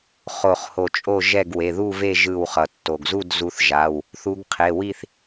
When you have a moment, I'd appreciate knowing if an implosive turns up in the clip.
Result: no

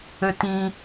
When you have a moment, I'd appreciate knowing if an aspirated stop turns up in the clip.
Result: no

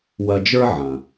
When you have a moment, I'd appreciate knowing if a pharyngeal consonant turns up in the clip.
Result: yes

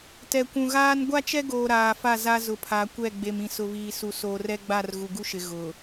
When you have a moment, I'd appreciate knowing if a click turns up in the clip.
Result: no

